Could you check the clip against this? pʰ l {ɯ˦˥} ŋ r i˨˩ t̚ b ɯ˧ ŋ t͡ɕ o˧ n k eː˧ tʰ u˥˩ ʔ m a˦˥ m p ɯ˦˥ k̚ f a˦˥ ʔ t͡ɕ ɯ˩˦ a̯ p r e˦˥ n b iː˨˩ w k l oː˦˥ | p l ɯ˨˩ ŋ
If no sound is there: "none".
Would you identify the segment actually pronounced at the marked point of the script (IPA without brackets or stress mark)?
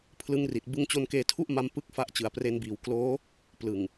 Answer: ɯ˦˥